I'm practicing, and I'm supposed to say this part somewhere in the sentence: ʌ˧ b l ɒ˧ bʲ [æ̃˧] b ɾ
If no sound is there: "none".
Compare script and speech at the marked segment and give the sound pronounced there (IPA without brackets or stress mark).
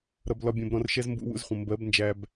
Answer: ɛ̃˧